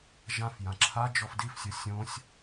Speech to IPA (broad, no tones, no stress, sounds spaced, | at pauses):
ʒ ã f j ã ǁʰ a d͡ʒ ɔ f d i f sʲ o sʲ õ sʲ